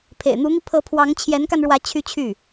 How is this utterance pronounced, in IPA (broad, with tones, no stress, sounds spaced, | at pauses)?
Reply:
pʰ ḛ˨˩ ɪ̯ n̪ u˧˥ n̪ i˧ pʰ ɤ˧˥ pʰ w ɑ˧˥ ŋ t͡ɕʰ j ɛ˧˥ n k a˧ n ɻ w ä˧˥ t͡ɕʰ y˥ t͡ɕʰ y˥˩